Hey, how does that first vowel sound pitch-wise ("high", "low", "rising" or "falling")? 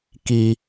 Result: high